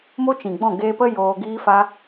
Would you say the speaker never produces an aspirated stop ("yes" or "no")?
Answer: yes